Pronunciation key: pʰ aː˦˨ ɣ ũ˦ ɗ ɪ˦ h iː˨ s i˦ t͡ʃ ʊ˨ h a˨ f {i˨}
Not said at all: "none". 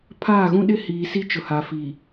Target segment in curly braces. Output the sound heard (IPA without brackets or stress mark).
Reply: i˨